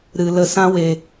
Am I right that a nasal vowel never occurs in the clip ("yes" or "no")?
no